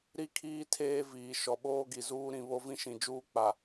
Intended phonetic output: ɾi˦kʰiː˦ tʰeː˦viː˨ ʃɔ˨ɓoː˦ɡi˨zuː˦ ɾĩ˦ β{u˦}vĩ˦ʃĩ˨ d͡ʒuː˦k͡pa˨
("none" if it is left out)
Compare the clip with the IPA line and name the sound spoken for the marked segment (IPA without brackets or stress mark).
o˦